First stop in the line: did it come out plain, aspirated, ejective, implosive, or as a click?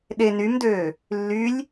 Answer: implosive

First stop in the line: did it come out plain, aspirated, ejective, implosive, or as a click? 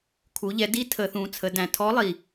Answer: aspirated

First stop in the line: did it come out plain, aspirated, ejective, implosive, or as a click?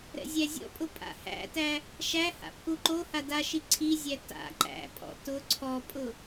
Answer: ejective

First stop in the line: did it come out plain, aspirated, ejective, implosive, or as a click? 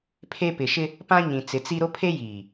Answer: aspirated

